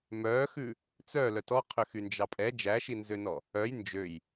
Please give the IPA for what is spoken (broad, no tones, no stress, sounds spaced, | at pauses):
m œ x ʉ | t͡s œ l œ t ɔ qʰ ø x y n d͡ʒ ɑ pʼ ɛ d͡ʒ æ ʃ i n z ø n ɔ | œ j n d͡ʒ ø j